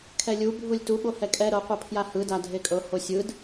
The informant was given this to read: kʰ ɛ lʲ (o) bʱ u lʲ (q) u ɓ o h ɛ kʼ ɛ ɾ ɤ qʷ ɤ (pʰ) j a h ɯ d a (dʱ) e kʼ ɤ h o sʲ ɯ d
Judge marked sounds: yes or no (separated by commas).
no, no, yes, yes